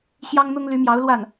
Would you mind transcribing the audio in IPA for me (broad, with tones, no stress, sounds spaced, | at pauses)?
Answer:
ɕ j ɑ˥ ŋ n̪ ʊ˥ ŋ l y˧˥ m j ɑ˧˥ ʊ̯ l w a˥˩ n